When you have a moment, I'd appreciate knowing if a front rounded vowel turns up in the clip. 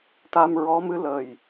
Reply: no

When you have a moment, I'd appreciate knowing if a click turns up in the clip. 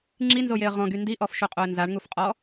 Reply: yes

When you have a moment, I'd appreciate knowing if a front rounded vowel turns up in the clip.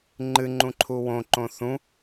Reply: no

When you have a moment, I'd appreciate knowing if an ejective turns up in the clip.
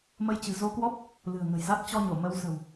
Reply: no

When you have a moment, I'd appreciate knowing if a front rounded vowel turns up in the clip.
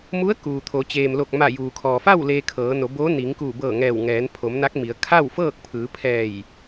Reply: no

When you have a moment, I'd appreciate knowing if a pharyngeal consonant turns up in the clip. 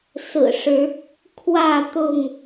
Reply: no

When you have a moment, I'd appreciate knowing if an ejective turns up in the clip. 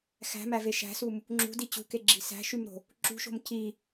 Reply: no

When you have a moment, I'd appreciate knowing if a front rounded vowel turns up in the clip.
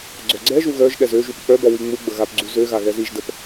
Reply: yes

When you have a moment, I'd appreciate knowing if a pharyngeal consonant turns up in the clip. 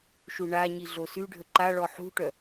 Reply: yes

